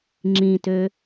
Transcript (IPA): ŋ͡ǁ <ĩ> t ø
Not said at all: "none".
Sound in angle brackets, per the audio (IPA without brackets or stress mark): ĩ